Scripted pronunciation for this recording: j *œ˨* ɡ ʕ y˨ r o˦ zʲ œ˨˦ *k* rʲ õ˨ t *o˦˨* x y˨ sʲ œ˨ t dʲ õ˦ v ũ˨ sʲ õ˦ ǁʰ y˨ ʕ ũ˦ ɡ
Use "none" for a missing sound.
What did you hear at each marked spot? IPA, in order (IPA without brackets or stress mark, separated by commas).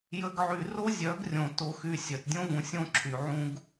ə˨, ɡ, o˨